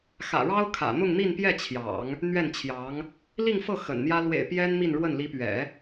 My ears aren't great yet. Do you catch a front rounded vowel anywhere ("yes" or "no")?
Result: no